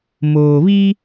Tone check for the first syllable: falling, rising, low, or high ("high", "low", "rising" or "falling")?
low